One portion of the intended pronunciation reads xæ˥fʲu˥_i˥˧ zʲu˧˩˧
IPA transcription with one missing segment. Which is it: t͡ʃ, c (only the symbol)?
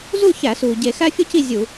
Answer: c